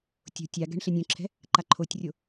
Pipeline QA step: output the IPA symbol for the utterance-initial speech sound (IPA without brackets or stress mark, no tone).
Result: tʲ